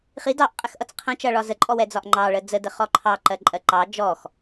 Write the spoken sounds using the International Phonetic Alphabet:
χ i d ɑ ʔ qʼ ɛ x ʔ ʌ t͡s qʰ ə̃ t͡ʃ ʌ ɭ ɒ z ə ǃʼ ɔ w ɛ d͡z ɒ ʔ ŋ͡ǃ ɑ ɭ ə d͡z ə d ə χ ɔ ǃʰ ɑ ǃ ɜ ǃʼ ɜ ǃ ɑ d͡ʒ ɔ x

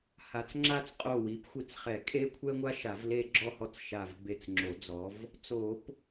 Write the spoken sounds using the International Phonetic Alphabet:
h a˨˦ t͡s ŋ͡ǁ a˥˧ t͡s qʼ o˧˩ w i˨˦ p xʷ i˧˩ t͡s χ ɛ˨˩˦ kʼ e˥ kʷʰ ɛ˥ ŋʷ a˥ ʃ a˨˩˦ v l e˥˧ ɡ͡ǁ ɔ˥˧ h ɔ˥˧ t͡s ʃ a˧˩ v b e˧˩ t͡s ŋ͡ǁ o˨˩˦ d͡z ɔ˨˦ v | t͡s o˨˩˦ p

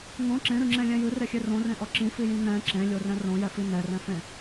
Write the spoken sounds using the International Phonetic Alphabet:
ŋ õ ǁ ẽ ɾ ɨ ŋ͡ǁ ẽ lʲ ɛ̃ j ɨ r e xʲ e r õ r ẽ ʔ ɔ ǁ ĩ f i j ĩ n̪ ɛ̃ ǁ ẽ lʲ o r ɛ̃ r õ j ɛ f i n̪ ɛ r ɛ̃ f ẽ

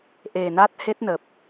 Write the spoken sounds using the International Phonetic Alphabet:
ʔ e˨˩ n a˦˥ t̚ h e˦˥ t̚ n ə˨˩ p̚

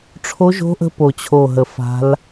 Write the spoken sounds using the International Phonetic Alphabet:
ʈ͡ʂʰ o˦˥ ʒ o̤˦˥ ʔ ə̤˦˥ p o˦˨ t͡ɕʰ o˦˨ ɦ ə˦˨ f a̤˦˥ l

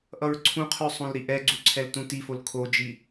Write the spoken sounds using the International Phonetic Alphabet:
ʔ ʌ ɹ ǀʰ ũ qʰ ʉ sˤ õ l ɾ i ʔ ɛ ɡ͡ǀ u ǀʰ ɛ l t ũ t i f o l kʰ o d͡ʒ i

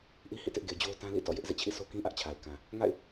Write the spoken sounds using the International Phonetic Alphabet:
ʔ i˦ h ḭ˦˨ t ɪ˦ ʔ ɡ e˨ d͡ʑ o˦ ʊ̯ t ã˦ l ḭ˦˨ t ɔ̰˦˨ j ɪ˦ ʔ z ḛ˦˨ t͡ɕʰ ḭ˦˨ s o˦ k ĩ˦ ʔ ä˦ ʔ t͡ɕʰ a˨ ɪ̯ k ã˨ | ŋ a̰˦˨ ɪ̯

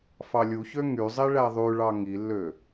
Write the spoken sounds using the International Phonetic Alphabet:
f ɑ lʲ u ç ø ŋ y zˤ i ɭ æ ðˤ y ɭ ɑ ŋ i lː ø

